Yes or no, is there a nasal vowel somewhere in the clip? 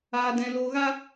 yes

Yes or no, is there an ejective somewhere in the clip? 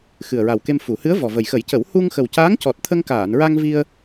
no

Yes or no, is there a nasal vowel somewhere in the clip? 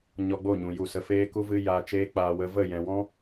yes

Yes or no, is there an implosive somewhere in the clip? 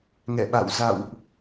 yes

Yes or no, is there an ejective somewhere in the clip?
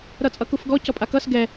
yes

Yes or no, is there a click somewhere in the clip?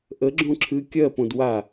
yes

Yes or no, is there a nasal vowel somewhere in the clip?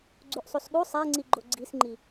no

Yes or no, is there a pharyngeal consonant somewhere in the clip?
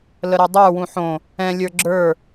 yes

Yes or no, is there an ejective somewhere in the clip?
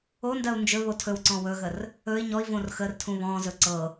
no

